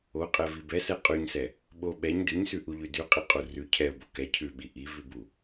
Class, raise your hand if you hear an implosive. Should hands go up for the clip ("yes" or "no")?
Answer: yes